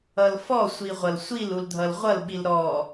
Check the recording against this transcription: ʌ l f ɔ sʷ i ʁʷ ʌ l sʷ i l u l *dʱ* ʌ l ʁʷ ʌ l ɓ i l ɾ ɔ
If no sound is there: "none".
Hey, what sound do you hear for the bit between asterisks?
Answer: dʱ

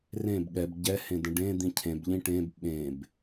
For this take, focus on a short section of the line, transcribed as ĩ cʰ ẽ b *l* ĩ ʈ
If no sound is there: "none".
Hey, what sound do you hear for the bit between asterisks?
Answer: ʎ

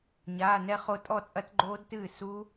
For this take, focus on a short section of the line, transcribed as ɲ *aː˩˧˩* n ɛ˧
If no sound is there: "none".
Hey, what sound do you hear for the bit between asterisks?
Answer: aː˩˧˩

